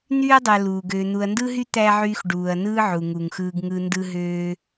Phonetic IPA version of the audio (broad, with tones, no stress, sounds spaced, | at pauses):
n̪ yː˥ ɐ̯ dˤ æ˨ l uː˩ ɡ øː˨ n̪ u˨ ɐ̯ n d ɯ˥ ɦ y˥ t̪ æ˥ ʕ yː˦ x ɖ uː˨ ɐ̯ n ɯː˦ ʕ u˩ ŋ u˩ ŋ x ɯː˨ ɡ ŋ ɯ˦ n d ɯ˥ ɦ øː˦